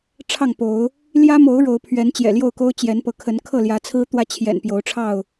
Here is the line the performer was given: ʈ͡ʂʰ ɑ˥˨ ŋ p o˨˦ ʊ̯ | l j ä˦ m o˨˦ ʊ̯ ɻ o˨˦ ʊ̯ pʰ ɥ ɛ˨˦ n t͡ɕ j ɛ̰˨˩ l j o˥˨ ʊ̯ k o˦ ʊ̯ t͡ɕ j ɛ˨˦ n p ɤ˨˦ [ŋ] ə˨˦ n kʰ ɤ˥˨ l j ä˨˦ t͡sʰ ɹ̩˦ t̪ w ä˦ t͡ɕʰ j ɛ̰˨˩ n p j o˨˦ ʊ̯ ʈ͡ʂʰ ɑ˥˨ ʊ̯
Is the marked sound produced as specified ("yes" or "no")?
no